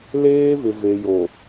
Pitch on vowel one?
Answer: high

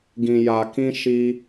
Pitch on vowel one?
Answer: low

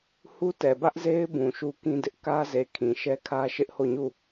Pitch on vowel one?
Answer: high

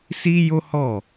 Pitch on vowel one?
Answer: high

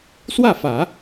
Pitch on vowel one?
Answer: falling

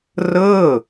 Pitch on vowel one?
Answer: falling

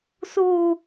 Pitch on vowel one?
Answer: high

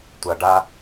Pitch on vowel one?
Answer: low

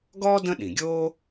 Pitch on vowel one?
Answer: high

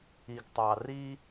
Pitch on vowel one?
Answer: low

